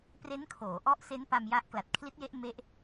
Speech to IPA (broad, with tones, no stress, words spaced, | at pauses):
pre˦˥nkʰoː˩˦ ʔɔ˦˥ʔse˦˥npa˧m ja˦˥ʔ kla˨˩t̚kʰli˦˥t̚je˦˥ʔ me˦˥ʔ